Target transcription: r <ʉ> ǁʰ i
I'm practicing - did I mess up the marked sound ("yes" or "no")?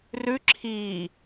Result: no